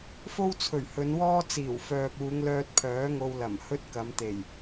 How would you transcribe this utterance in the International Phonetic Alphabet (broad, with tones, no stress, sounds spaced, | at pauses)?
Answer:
f o˥ w t͡sʰ ɵ˨˩ ɥ h ɵ˨˧ n w ɔː˥ t͡s iː˨˩ w f œː˨ p̚ uː˨˧ ŋ l œː˧ t̚ pʰ œː˨˥ ŋ o˧ w l ɐ˨˩ m h ɵ˥ t̚ k ɐ˨˧ m t̪ e˨˩ j